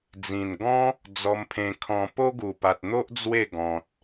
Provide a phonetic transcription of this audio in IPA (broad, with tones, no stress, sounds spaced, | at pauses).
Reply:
d͡z ĩ˨˩ n ɡ ɔ̃˦ | d͡z ɔ˧ m pʰ ẽ˧ kʰ ɔ̃˧ p o˦ ɡ u˨˩ p a˨ t̚ n̪ o˦ ʔ d͡z w e˥˧ ɡ ɔ̃˨ t̚